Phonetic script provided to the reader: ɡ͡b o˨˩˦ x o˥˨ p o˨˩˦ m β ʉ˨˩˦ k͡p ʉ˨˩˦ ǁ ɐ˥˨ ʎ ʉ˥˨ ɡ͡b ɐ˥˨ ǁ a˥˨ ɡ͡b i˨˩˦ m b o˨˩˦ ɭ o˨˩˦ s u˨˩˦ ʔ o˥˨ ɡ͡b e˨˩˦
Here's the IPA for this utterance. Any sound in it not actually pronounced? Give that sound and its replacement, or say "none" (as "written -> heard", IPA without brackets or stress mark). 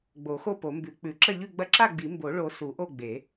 β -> b